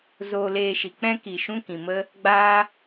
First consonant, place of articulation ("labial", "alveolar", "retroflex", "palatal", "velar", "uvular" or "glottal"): alveolar